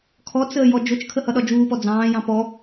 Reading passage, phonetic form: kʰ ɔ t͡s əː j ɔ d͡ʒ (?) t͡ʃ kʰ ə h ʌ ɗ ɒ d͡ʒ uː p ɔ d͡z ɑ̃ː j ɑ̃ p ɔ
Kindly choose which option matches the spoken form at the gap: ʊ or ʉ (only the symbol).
ʊ